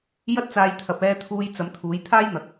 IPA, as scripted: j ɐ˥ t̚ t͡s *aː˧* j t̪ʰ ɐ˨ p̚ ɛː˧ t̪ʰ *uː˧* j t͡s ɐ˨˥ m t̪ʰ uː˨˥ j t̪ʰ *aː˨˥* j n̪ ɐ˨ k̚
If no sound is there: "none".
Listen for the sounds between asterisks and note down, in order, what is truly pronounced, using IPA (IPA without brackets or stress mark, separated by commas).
aː˧, uː˧, aː˥